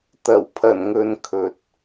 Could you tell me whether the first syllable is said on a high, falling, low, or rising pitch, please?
low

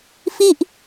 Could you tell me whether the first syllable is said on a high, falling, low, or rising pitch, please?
falling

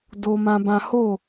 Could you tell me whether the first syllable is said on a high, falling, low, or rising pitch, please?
high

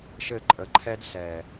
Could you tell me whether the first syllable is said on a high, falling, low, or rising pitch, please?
falling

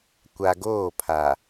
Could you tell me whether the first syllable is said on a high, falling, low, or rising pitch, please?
high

